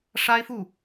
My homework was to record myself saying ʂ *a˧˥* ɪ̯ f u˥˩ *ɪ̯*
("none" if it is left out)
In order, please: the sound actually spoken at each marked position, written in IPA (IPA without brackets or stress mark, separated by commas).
a˥, none